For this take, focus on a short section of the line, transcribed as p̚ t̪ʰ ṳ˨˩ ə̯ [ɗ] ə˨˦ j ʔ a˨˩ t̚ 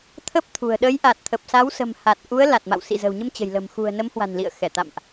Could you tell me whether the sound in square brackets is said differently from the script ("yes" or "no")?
no